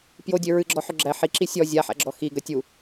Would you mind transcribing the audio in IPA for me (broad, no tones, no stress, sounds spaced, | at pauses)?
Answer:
p j o dʲ ø ɹ ɨ ɡ͡ǁ ɔ ħ ʏ ɡ͡ǁ æ ħ i ǁ i sʲ ɔ zʲ a ħ æ̰ ɡ͡ǁ ɔ x i ɡ ə tʲ u